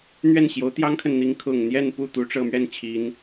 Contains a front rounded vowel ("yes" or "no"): no